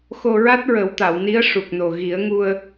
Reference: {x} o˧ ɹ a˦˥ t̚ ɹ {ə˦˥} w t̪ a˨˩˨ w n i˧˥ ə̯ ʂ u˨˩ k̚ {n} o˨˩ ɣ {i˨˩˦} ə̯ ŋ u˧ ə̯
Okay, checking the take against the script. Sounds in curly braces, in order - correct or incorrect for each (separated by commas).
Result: correct, incorrect, correct, correct